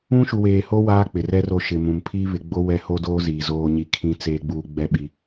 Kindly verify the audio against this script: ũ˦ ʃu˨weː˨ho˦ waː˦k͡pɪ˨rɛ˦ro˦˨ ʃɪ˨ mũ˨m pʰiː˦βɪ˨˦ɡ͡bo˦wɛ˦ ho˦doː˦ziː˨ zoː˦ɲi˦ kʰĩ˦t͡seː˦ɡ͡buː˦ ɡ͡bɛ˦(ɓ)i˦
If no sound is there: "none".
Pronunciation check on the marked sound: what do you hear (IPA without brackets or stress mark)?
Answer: ɓ